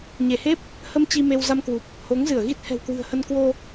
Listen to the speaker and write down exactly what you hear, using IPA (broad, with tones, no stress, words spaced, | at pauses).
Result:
ɲe˧˩he˦˥p̚ | hə˧m t͡ɕi˧me˧w za˧mkwu˨˩p̚ | ho˨˦ŋzɨ˧˩ə̯ɣi˦˥t̚ hɛ̤˨˩wkwɨ̤˨˩ə̯hə˧n kwo˧